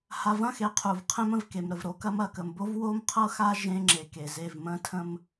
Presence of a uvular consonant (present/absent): present